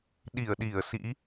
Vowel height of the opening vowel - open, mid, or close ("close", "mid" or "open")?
close